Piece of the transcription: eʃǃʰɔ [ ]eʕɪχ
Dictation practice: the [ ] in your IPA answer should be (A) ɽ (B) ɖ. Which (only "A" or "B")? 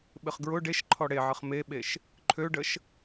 A